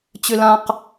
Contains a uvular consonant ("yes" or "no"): yes